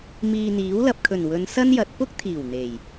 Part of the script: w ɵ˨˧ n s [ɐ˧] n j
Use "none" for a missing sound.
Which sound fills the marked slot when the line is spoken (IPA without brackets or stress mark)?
ɐ˥